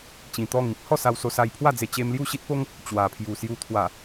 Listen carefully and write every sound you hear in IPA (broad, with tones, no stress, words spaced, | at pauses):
t͡ɕĩ˨˩t̪ɔ˥˧ŋĩ˦p̚ hɔ˥˧sa˧wso˧ sa˧jpʰwa˥˧d͡ze˧ t͡ɕe˧mlju˥˧ɕi˦t̚po˦ŋ | t͡ɕwa˨˩pʰju˨˩ sju˧t̪ʰwa˨˩